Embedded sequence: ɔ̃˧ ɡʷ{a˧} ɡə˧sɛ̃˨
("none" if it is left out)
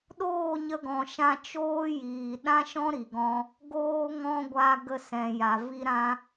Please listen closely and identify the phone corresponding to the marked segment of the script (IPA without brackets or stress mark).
a˧